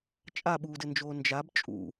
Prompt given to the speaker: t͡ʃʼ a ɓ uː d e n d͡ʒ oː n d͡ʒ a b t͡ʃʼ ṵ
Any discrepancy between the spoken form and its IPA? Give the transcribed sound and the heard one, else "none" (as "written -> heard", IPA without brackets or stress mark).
e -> ɘ